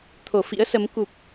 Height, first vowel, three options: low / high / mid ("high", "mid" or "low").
mid